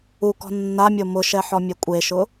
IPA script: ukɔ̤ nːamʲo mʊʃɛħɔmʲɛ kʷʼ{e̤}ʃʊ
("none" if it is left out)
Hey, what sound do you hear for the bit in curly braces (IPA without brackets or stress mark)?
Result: e